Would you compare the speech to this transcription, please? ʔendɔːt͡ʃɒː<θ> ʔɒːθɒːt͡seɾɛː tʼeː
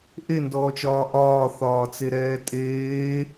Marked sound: incorrect: none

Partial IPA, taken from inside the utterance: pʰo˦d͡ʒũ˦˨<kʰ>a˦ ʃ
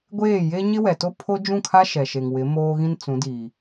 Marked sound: correct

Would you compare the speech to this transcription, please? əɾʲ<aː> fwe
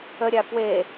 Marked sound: incorrect: a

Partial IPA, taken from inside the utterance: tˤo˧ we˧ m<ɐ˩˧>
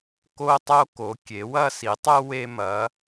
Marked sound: correct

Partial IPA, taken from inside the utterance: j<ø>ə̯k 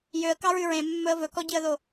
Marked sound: correct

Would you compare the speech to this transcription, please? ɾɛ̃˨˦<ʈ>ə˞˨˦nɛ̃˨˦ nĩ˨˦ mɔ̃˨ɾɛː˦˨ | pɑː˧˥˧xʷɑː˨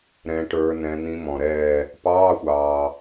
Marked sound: correct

